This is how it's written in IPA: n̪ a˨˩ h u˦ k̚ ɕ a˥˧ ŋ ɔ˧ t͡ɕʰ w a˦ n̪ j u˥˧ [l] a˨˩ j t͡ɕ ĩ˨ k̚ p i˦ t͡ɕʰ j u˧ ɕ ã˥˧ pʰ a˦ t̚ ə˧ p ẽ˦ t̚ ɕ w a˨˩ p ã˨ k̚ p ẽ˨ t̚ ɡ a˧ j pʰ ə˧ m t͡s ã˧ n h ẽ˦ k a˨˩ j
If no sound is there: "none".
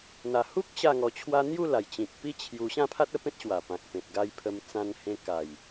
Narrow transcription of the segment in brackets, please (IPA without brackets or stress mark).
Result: l